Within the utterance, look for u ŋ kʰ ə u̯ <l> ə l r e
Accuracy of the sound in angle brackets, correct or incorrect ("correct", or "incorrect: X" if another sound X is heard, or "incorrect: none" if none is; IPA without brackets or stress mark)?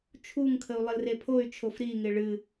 incorrect: lˠ